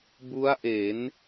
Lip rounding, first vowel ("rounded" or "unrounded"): rounded